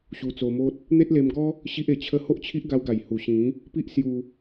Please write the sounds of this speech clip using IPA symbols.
ɕ u˧ t͡s o˧ m o˦ t̚ | n̪ e˦ t̚ l e˧ m ɡ ɔ˦ | ɕ i˦ ʔ e˨˩ t͡ɕʰ ə˦ h o˦ ʔ t͡ɕʰ i˦ ʔ ɡ a˧ w ɡ a˨˩ j h u˨˩ ɕ ĩ˨˦ | p i˦ ʔ s j u˧

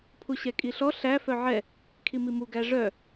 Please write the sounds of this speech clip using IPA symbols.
pʰ u ɕ ɛ kʼ i ɬ ɔ ɬ æ f œ ʕ ɛ | kʰ i m i m u ɡ æ ʐ œ

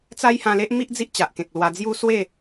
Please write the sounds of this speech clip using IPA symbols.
t͡s a˦ j h ã˧ l e˦ ʔ m i˦ ʔ d͡z i˦ ʔ t͡ɕ a˨ ʔ k ẽ˨ k̚ l w a˧ d͡z j u˦ s w e˥˧

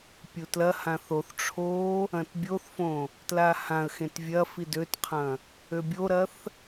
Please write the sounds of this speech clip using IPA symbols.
pʲ u t l ɐ h ã θ o θ ʈ͡ʂʰ o | ɐ̃ t bʲ o θ f õ | t l a h ã ə̯ x ẽ t vʲ ɐ f i d ø t qʰ ɐ̃ | ø bʲ o ɾ ɐ θ

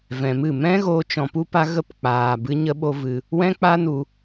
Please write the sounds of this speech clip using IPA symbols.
v ɛ̃˨ m ɨ˦˨ m ɛ̃˦ ɣ oː˧ t͡ʃ ɔ̃˧ p u˦ p a˦ ɣ ə˦˨ p k͡p aː˨ b ɨ˦ ɲ ə˦ ɓ o˦ v ɨ˧ | w ɛ̃˦ k͡p a˦ n u˧

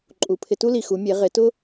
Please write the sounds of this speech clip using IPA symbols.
ǃʼ u˩˧ pʰ ɪ˧ t u˥ l i˩ x u˩˧ mʲ e˩˧ ʁ ɪ˩˧ t ʊ˥

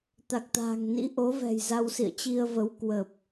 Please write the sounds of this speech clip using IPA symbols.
t̪ a˨˩ k̚ t̪ a̤ː˨˩ ŋ n ḭ˧˥ ʔ o˨˦ v ɛ̤˨˩ j z a˧ w s ḭ˧˨ ə̯ t͡ɕ i˧ ə̯ v ə˨˦ w k w ə˨˩ p̚

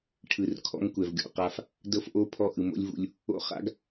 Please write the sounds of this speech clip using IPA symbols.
ʈʰ ɯ˨ r kʰ ɔ̰˦ ŋ kʷ ɛ˨ v ɡʲ ɔ̰˨ q a˦ f | d ɤ˦ f ʔ o˦ pʰ ɔ˦ ʔ ɯ˨ m o̰˦ lʲ v ṵ˦ lʲ | o̰˦ χ a̰˦ ɡ

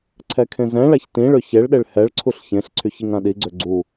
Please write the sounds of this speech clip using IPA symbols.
ǀʰ ɛ kʰ ẽ z ɛ̃ ɭ a ç t ĩ ɭ ø ç e ɭ ɗ e ɭ h ɛ ɭ ǀʰ u ɬ ç ẽ ɬ ǀʰ y ç i ŋ ã ɗ i ɡ͡ǀ ø ɡ͡ǀ u

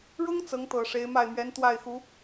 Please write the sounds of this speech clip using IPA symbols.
ɻ ʊ˥ ŋ t͡s ɤ˧˥ ŋ t̪ ɤ˨˩ ʂ e˧˥ ɪ̯ m a˥˩ ɪ̯ m ɥ ɛ˧˥ n t̪ w a˥˩ ɪ̯ x u˧˥

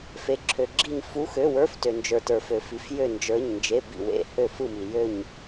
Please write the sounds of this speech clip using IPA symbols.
f e˨ ǁʰ ø˨ ɡ͡ǁ i˥˨ ɲ f u˧˥˧ x ø˧˥˧ w ə˞˧˥˧ f t ø˨ n d͡ʒ ə˞˨ t ə˞˨ f ø˨ f i˨ f j ø˥˨ n d͡ʒ ə˞˧˥˧ ɲ n d͡ʒ e˧˥˧ b ḭ˥˨ w ḛ˧˥˧ h ø˥˨ f ɯ˥˨ m i˨ j ø˥˨ ɲ

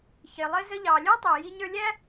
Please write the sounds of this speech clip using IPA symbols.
ç ɪ˩ lˠ ɪ˥ z ə˥ ʎ ɑ˩ lʲ ə˞˥ tˤ ɛ˩ j i˧ ɲ ə˞˧ lʲ æ˥

